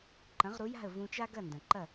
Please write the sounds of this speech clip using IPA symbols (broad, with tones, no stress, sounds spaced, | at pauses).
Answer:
ǃ ɐ̃˩˥ ʁ ɾ u˩˥ j a̤˥˩ ə̯ v ũ˧ t͡ʃ a˥ ɡ ɐ˥˩ n d ɐ̃˩ ǃ ɐ˥˩